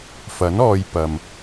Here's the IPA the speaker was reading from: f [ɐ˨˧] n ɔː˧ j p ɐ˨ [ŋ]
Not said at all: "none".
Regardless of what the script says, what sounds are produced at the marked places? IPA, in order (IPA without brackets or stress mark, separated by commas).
ɐ˨˥, m